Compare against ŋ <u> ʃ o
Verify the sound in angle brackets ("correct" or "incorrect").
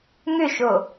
incorrect